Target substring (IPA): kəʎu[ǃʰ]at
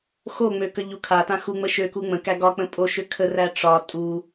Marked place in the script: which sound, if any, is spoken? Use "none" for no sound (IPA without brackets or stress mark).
kʰ